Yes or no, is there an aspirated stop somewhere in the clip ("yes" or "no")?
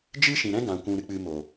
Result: no